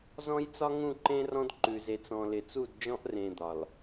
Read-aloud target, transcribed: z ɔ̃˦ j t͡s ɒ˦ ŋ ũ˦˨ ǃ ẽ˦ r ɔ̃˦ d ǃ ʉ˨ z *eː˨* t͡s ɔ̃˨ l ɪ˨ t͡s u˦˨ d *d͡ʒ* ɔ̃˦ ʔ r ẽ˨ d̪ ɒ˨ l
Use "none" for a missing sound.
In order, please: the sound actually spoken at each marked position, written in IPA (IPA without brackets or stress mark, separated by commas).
e˨, d͡ʒ